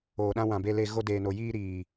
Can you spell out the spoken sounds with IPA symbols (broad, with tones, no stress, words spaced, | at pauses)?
oː˨ɗã˧ wã˨be˧le˧ ɣo˧deː˨no˨ jiː˧ɾiː˨